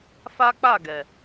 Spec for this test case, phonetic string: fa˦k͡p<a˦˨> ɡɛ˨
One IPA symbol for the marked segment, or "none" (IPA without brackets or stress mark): a˦˨